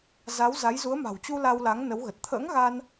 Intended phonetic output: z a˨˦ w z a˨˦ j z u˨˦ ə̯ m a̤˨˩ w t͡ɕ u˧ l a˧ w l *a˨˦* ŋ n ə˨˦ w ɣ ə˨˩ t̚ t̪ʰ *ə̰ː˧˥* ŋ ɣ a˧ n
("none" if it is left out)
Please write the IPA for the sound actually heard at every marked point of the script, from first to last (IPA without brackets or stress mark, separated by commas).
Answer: a˨˦, ə̰ː˧˥